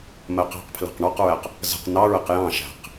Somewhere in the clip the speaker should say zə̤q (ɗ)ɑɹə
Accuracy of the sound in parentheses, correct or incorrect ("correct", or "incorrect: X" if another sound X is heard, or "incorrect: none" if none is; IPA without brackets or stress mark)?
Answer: incorrect: n